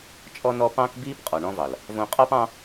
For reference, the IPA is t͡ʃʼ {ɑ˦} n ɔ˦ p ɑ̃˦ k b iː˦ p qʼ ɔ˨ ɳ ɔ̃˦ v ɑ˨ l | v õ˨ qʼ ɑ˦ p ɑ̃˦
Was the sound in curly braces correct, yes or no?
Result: no